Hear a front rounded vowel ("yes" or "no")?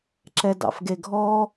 no